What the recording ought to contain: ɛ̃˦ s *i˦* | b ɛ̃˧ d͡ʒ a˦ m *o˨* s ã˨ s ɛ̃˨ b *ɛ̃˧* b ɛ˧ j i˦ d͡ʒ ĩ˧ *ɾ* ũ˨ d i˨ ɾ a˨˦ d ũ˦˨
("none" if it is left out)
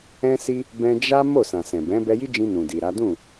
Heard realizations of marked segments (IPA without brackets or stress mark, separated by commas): i˦, o˦˨, ɛ̃˨˦, n